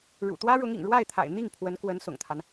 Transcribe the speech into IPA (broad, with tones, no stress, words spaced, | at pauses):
ɻṵ˨˩t̪wä˥ɻʊ˧˥ŋḭ˨˩ŋ ɻwa˥˩ɪ̯t̪ʰa̰˨˩ɪ̯ n̪i˥˩ŋ pʰwə˧˥nkwə˧˥nsʊ̰˨˩ŋt̪ʰa˦n